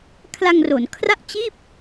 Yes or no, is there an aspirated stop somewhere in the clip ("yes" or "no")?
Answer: yes